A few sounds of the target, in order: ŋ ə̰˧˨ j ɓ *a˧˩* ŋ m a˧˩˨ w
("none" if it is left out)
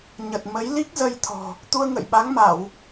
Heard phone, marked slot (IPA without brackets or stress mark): a˨˦